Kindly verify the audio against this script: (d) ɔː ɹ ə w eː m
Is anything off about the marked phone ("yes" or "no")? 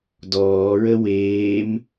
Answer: no